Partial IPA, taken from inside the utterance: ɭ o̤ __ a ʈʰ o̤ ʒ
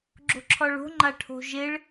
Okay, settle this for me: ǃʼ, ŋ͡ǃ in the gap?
ŋ͡ǃ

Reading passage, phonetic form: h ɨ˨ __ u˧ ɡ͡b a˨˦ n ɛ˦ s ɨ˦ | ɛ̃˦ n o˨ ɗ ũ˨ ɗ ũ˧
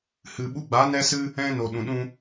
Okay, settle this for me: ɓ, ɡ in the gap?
ɓ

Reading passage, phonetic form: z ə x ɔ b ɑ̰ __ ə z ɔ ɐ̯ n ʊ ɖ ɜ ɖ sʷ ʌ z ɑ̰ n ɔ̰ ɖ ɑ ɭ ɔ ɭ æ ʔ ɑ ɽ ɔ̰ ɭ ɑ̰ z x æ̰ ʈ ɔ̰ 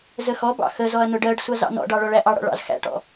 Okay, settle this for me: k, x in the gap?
x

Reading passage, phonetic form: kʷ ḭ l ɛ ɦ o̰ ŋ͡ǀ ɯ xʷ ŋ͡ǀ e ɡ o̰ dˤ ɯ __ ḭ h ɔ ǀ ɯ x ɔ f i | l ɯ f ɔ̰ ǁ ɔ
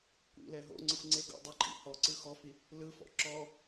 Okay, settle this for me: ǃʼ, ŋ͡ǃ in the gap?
ǃʼ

